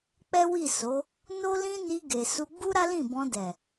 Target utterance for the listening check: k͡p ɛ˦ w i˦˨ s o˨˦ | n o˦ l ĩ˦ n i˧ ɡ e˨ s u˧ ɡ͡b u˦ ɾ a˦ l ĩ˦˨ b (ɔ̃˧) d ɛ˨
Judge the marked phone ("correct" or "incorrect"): correct